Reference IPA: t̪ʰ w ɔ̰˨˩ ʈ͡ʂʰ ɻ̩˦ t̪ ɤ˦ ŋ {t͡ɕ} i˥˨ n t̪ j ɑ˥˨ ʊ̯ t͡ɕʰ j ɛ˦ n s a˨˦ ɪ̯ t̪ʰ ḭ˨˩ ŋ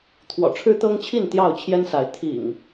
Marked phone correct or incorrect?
incorrect: t͡ɕʰ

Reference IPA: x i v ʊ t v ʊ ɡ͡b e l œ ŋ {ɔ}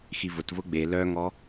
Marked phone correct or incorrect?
correct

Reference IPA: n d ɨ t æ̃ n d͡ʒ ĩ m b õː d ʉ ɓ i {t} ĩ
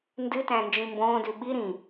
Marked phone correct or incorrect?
incorrect: ɾ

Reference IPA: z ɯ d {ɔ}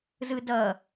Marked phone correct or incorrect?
incorrect: ʌ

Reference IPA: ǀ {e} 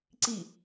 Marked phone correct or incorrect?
incorrect: i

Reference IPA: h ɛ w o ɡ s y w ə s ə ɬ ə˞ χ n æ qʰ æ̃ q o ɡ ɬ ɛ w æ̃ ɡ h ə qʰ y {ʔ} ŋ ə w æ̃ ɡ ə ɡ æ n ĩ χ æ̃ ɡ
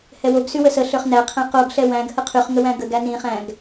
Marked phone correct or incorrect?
incorrect: χ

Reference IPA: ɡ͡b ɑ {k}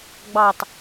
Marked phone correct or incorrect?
incorrect: t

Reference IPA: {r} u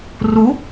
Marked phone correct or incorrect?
correct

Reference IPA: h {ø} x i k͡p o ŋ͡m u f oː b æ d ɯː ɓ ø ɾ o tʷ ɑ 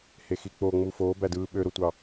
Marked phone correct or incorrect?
incorrect: e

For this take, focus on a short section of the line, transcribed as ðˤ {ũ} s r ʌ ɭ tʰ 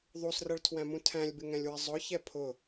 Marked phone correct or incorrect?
incorrect: u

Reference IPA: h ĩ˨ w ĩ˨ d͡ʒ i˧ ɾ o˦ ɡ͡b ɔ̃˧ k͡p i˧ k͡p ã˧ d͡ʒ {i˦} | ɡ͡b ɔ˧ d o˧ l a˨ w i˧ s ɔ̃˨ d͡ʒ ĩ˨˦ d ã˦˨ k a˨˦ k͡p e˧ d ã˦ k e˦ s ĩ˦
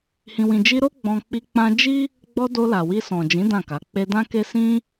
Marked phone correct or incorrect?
correct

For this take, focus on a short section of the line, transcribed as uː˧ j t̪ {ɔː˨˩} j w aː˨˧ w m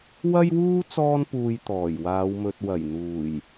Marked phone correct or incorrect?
correct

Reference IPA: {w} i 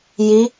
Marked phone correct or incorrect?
incorrect: j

